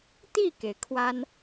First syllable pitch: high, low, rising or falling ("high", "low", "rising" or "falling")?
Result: falling